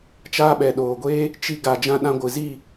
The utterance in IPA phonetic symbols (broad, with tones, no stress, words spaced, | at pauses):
t͡ʃaː˧ɓɛ˨ ɗoː˨ɡʷeː˦ | t͡ʃi˧ ɡa˨ d͡ʒã˧ɗã˧ɡʷɨ˨ zi˦˨